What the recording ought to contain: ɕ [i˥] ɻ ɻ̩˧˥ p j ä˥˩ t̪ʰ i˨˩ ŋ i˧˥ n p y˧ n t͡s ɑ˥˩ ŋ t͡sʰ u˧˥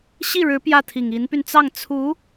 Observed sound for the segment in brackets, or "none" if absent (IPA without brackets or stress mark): i˥˩